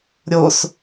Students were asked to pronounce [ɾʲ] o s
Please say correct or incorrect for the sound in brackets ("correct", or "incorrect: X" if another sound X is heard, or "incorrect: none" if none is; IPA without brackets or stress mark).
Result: correct